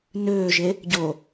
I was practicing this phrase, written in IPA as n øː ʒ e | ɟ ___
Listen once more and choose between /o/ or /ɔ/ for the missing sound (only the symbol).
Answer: o